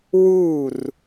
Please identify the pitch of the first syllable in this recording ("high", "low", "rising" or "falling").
falling